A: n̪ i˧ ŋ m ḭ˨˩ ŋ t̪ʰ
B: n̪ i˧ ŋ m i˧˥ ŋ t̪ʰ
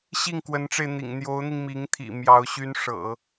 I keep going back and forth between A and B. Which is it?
B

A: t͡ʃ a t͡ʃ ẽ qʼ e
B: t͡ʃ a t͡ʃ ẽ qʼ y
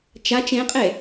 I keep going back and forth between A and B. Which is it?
A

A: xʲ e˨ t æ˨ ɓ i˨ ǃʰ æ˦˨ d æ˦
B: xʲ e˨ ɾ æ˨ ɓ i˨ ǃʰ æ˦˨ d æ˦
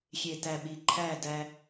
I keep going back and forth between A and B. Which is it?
A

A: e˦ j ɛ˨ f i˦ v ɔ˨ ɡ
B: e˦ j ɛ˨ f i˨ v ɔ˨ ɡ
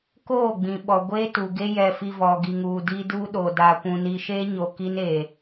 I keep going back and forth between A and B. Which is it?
B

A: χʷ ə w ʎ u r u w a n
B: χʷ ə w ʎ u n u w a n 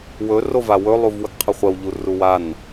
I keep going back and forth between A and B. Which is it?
A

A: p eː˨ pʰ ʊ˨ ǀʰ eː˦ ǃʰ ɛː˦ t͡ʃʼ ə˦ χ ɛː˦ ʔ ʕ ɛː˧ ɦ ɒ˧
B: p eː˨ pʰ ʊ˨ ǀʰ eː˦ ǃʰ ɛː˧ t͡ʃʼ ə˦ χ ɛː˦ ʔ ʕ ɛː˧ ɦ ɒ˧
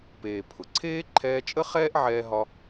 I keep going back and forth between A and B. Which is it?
B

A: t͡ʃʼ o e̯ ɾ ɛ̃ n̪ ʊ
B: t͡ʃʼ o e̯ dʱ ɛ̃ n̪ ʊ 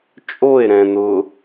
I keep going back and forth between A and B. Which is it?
A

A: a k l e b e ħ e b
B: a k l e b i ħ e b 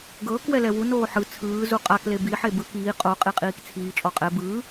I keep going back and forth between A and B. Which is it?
B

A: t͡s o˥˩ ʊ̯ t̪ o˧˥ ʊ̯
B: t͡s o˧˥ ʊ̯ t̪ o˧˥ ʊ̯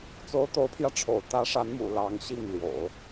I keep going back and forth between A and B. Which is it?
B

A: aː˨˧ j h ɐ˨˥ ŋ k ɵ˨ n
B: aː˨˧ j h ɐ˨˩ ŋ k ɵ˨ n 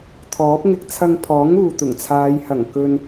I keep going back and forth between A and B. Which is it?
B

